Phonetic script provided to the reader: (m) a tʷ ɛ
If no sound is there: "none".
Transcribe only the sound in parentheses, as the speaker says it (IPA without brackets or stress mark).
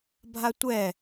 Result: bʱ